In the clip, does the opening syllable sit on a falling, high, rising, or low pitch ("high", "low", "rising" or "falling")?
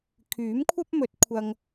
rising